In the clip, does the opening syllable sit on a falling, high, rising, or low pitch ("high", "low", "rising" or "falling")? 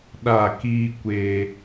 falling